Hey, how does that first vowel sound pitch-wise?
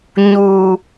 low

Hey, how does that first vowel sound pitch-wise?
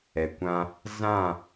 low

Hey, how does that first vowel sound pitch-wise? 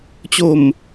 low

